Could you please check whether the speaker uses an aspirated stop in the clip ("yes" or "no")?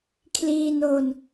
yes